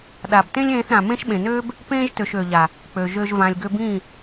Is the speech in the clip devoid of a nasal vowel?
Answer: no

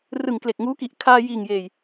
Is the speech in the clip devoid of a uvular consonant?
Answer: yes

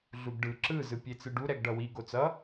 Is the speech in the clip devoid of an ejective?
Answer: yes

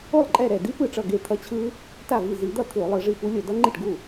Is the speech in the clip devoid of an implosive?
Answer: yes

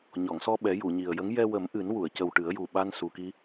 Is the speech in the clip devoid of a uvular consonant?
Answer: yes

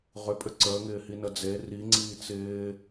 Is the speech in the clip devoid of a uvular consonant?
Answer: no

